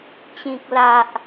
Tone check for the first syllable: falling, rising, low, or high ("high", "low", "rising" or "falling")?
high